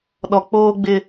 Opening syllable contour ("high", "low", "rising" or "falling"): low